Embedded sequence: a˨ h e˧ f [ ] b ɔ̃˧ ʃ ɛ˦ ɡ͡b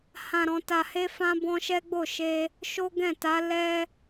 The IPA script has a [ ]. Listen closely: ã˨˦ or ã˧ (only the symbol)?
ã˧